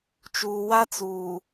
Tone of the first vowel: low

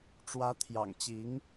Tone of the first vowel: rising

